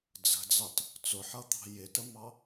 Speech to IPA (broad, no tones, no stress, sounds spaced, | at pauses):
d͡z ə̤ d͡z ɑ t | t͡s ʊ ħ ʌ t̪ ɑ̤ j ɪ t ə m ɑ